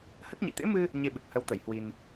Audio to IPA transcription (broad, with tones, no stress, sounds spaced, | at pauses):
h ə˦˥ t̚ ɲ ḭ˧˨ t̪ ḛ˧˥ m ɨ˧ | ɲ e˧ ɓ ɨ˨˩ k̚ h ə˨˦ w t̪ ə˧˩ j h w i˧ n